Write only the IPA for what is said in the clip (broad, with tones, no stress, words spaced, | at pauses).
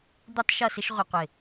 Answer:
d̪u˥tˤʃʌ˥˧sɪ˥ʃ ʁʷɪ˧qʷɪ˧˩